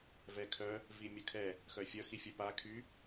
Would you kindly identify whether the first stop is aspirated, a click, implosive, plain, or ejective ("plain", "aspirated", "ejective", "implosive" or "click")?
aspirated